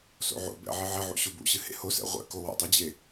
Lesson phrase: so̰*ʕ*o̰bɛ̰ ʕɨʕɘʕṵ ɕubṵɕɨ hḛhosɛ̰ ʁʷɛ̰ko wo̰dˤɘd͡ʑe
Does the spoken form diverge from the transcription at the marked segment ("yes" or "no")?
no